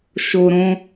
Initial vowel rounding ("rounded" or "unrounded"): rounded